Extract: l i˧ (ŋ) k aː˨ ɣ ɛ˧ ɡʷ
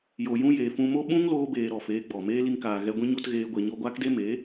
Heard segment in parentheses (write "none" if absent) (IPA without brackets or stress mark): ŋ